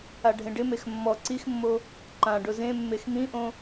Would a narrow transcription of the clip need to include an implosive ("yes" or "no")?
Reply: no